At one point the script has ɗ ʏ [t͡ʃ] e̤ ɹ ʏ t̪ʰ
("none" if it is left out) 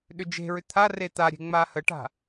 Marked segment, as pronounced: d͡ʒ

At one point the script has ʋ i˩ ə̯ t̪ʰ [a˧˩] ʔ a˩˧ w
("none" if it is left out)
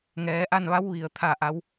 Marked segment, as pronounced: a˧˩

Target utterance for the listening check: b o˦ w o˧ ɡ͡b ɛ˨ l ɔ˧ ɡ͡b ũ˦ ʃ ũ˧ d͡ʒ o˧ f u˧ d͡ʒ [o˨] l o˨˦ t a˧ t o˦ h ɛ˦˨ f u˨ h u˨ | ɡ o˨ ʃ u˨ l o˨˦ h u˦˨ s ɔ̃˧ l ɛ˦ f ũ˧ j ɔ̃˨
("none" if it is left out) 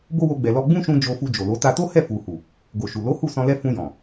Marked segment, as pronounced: o˨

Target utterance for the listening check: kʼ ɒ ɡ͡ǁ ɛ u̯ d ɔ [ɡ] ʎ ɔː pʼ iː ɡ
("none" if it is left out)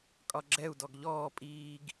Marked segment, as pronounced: ɡ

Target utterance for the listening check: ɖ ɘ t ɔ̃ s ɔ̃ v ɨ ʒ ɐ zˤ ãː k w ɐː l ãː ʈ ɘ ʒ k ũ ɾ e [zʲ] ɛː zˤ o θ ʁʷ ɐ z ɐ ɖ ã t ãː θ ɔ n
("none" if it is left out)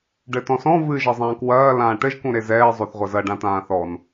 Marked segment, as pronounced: z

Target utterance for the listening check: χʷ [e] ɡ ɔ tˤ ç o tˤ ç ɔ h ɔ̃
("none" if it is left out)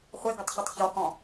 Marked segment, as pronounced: e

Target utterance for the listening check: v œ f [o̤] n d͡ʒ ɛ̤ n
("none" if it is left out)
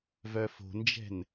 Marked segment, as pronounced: o̤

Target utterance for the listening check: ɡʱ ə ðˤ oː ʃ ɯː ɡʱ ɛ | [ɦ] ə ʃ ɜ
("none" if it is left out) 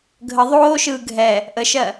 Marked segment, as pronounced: ʔ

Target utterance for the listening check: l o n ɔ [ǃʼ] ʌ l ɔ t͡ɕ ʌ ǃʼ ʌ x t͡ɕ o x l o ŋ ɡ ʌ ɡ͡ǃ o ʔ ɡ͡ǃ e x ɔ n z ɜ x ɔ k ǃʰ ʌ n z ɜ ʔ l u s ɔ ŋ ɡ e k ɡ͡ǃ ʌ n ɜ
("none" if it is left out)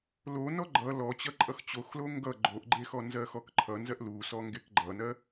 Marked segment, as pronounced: ɡ͡ǃ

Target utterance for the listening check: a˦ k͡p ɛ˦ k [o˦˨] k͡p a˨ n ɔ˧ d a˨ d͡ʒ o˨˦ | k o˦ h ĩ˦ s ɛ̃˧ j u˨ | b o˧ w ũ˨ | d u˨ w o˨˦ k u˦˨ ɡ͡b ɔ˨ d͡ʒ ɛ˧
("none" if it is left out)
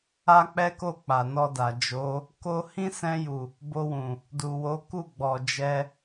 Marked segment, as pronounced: o˦˨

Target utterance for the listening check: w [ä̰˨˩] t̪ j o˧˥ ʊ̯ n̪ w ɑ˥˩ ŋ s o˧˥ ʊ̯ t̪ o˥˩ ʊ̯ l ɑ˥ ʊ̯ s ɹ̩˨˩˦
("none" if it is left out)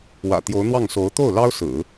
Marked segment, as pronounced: ä̰˨˩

